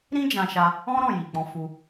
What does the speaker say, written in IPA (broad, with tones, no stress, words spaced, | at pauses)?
ɾĩ˦d͡ʒã˧ʃa˧ | ɔ̃˦ɾɔ̃˦˨ji˨ k͡pɔ̃˨˦fu˧